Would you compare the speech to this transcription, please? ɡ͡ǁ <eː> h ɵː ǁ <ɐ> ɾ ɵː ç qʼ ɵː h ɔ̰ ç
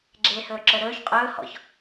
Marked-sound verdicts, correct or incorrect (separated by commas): correct, incorrect